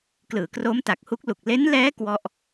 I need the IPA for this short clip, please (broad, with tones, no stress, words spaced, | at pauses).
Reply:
klɯː˩˦kroː˦˥mta˨˩k̚hu˦˥k̚ lu˨˩k̚ le˦˥nlɛː˦˥ kwɔ˥˩ʔ